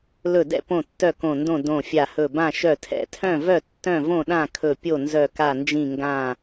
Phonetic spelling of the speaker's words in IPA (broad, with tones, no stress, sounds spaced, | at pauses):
l ɵ˧˩ d ɛ̰˥˨ p õ˧˩ tː œ˧˩ k õ˧˩ n d õ˥˨ d õ˧˩ fʲ a˧˩ h ɵ˧˩ b ã˥˨ ʃ œ˧˩ tʰ ɛ̰˧˩ tʰ œ̃˥˨ v œ˥˨ tː œ̃˥˨ v õ˥˨ ɗ ã˥˨ kʰ ɵ˧˩ pʲ o˥˨ n z œ˧˩ k a˧˩ n d͡ʒ ĩ˧˩ ŋ ɡ ã˧˩